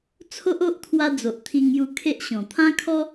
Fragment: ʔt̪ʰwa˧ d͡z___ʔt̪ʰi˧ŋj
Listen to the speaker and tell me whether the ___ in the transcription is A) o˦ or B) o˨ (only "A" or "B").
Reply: B